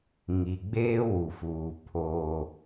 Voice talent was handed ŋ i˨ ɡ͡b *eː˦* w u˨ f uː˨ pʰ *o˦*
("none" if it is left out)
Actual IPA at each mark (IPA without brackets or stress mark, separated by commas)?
eː˦, oː˦